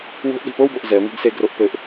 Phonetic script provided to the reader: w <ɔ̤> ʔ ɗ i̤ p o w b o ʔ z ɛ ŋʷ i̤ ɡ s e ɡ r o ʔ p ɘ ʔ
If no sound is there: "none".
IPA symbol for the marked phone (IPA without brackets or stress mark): o̤